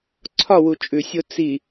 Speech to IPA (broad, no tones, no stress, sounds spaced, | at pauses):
ǀʰ ɒ w u t͡ʃʼ ʉ sʲ o t͡s i